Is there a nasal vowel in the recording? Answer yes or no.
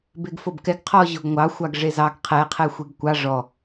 no